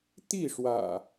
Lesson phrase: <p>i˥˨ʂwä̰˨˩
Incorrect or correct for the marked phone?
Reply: incorrect: t̪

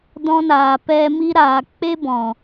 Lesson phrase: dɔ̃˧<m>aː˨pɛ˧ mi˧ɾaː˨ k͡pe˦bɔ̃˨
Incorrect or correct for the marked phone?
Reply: incorrect: n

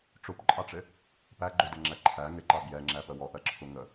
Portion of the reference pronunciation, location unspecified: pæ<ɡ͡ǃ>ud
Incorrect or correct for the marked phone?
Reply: correct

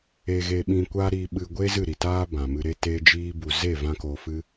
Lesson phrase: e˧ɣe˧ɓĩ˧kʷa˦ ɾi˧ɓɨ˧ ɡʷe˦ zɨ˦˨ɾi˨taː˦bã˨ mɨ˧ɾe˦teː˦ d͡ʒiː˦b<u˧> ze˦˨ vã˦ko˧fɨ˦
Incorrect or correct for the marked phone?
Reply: correct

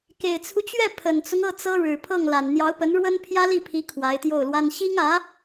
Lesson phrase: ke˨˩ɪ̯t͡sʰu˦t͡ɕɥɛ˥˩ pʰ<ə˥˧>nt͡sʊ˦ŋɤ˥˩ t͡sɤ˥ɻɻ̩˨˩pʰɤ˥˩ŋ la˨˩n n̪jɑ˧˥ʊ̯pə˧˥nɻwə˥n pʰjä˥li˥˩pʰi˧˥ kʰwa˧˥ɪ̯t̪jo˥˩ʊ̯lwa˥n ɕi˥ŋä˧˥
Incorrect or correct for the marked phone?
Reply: incorrect: ə˨˩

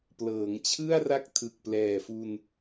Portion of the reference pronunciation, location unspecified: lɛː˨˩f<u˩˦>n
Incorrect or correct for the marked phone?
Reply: incorrect: u˧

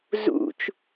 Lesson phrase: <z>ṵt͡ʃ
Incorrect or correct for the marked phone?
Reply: correct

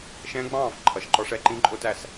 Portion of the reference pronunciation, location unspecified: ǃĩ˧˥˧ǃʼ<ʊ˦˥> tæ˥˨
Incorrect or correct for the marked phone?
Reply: correct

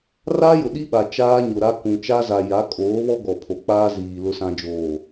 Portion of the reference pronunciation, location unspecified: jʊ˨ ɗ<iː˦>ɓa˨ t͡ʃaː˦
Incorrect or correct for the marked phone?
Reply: incorrect: i˦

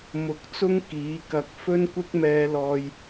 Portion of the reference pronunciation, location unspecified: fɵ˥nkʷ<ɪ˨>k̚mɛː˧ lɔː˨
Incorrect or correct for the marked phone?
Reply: incorrect: ɪ˥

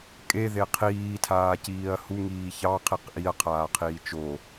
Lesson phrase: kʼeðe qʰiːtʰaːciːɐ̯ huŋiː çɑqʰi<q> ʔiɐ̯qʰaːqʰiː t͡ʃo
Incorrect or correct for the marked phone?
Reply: correct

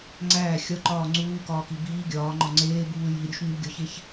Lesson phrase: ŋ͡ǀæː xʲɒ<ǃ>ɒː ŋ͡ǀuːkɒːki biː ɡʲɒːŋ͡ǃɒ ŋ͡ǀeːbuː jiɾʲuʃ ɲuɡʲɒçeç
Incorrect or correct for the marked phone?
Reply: correct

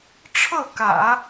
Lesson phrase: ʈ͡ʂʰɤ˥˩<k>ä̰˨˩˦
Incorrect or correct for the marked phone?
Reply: correct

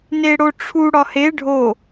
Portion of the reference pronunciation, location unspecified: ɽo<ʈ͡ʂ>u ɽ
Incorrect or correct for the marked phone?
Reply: incorrect: ʈ͡ʂʰ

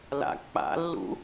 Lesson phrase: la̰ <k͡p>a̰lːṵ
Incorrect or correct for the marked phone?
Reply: correct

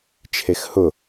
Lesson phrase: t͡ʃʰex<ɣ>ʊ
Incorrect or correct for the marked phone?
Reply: incorrect: h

